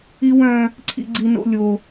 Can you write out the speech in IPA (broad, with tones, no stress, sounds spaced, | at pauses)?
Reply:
i˦ w œ̃˦ | ǀʰ ḭ˦ ɡ͡ǀ i˦ n o̰˦ lʲ o˦